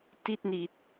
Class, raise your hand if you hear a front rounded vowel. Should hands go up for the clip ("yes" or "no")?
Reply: no